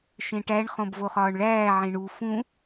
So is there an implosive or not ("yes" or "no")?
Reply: no